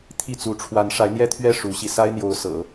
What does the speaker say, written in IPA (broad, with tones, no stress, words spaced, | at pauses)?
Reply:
t̪ʰi˥˩t͡su˧˥ ʈ͡ʂʰwa˧˥nʂa˧˥ɪ̯n̪jɛ˥˧t̪ʰɥɛ˥˩ ʂu˧˥ɕi˧ sa˥ɪ̯n̪jo˧˥ʊ̯ sɤ̰˨˩˦